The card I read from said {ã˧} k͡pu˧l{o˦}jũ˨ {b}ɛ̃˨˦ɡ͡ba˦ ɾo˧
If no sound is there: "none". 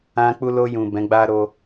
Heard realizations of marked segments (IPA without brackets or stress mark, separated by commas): ã˧, o˧, b